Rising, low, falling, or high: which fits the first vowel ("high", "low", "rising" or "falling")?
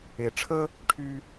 low